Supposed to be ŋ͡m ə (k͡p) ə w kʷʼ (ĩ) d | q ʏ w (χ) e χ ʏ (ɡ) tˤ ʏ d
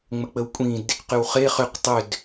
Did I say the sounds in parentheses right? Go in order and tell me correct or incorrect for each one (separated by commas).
correct, correct, correct, incorrect